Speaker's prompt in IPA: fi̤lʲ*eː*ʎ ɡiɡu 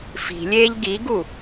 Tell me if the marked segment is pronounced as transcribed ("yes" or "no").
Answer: yes